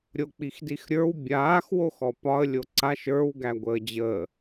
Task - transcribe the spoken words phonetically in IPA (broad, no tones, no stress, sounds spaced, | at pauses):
ɾʲ o k͡p i x d i x ɾʲ ə˞ w bʲ aː x w o x ɔ p ɒ ə̯ lʲ o ǀ a ʃ ə˞ w ɡ æ ɡʷ əː d͡ʑ əː